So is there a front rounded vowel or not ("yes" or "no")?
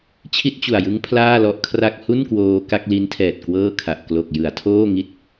no